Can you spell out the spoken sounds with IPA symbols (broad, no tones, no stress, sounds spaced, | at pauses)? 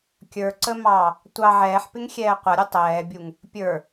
kʲ ə˞ ǀ ə m ɑ | tʷ ɑ ʕ ɛː ħ p ɪ ŋ xʲ ɛː qʷ ʌ ɾʲ u tˤ ɛː bʲ u ŋ | pʲ ə˞